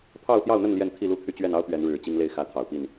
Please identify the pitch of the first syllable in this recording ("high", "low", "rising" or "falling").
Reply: falling